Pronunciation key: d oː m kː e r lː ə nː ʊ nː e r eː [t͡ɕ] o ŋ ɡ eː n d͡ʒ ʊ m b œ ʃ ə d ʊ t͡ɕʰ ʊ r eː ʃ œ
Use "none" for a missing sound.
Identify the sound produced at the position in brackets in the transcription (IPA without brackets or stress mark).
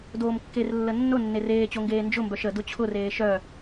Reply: t͡ɕ